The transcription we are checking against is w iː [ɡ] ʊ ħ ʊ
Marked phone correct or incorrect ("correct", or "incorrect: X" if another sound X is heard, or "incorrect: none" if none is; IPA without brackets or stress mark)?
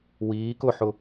incorrect: k